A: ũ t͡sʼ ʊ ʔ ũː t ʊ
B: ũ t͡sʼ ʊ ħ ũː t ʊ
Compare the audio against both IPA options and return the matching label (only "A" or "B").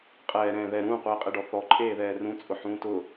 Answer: B